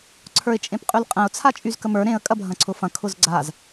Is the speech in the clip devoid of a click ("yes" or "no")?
no